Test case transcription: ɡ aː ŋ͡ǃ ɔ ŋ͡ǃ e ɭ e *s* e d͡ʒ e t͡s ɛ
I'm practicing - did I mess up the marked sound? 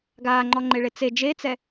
yes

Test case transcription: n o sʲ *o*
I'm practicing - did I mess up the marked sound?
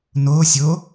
no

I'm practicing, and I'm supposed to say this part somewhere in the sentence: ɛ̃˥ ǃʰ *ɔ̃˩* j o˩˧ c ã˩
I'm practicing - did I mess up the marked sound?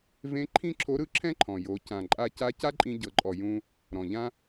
no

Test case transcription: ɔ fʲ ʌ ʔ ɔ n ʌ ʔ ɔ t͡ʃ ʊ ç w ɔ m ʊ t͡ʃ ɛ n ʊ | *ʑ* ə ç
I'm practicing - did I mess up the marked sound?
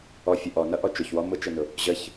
no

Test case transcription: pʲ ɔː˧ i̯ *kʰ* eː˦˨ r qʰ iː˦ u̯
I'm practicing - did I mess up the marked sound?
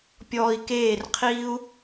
yes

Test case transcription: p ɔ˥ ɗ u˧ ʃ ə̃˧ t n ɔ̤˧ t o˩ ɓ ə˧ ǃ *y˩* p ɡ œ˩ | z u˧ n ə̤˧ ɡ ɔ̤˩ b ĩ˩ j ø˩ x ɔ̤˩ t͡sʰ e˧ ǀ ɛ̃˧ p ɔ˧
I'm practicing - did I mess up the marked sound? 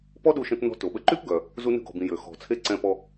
yes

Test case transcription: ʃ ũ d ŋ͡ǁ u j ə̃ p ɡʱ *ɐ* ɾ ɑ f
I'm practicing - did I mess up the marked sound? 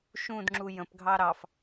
yes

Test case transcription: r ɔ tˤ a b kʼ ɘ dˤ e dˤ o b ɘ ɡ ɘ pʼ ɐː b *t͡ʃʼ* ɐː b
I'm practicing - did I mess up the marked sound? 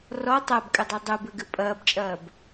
no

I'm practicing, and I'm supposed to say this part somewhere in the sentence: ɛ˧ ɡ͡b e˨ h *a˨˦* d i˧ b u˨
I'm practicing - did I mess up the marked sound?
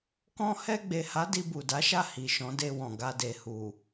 no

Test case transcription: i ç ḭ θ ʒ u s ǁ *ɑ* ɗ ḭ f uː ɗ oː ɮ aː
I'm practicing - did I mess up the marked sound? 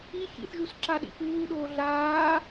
yes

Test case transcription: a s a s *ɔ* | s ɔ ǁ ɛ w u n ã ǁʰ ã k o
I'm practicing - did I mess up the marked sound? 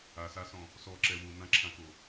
yes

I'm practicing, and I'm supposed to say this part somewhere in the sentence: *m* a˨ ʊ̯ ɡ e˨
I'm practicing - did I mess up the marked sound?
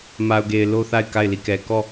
no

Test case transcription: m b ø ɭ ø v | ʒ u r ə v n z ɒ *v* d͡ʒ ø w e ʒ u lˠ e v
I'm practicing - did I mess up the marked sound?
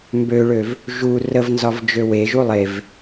no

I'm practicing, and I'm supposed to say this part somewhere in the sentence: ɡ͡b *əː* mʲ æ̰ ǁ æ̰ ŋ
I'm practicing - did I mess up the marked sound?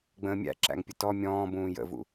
yes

